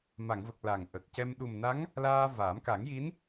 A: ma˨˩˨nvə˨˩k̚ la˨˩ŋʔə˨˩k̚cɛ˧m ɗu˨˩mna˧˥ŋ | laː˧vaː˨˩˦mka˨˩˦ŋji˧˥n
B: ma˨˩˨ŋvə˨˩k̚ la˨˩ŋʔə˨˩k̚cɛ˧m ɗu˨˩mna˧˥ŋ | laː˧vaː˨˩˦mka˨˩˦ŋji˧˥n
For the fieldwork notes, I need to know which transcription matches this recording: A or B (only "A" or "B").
B